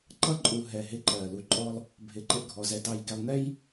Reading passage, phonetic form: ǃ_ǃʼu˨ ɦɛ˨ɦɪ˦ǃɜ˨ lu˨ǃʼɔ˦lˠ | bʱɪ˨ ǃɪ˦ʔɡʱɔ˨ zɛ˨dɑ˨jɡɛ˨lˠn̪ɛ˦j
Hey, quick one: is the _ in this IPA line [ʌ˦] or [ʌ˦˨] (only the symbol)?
ʌ˦